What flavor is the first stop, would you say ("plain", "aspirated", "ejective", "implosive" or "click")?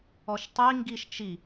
plain